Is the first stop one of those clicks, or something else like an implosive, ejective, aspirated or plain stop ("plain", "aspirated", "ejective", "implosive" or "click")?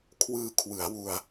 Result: aspirated